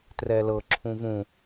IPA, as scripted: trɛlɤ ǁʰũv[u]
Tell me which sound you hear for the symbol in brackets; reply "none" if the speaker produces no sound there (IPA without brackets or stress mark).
ũ